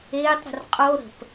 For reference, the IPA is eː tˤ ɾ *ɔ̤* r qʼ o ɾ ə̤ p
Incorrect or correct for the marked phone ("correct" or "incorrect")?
incorrect